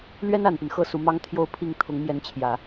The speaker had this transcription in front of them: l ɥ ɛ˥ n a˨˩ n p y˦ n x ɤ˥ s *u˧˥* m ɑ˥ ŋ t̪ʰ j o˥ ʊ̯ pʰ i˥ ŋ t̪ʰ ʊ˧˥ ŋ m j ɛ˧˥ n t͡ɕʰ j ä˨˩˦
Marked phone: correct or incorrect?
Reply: correct